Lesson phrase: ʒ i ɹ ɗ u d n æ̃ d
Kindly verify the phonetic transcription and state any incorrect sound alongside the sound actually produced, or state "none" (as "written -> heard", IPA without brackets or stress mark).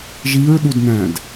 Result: none